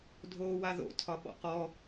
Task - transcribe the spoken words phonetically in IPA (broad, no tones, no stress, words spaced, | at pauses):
dʱoːwaðo̰ tʰɒɓɔ̰qɔ